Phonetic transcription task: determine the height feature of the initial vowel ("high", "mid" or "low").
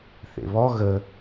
mid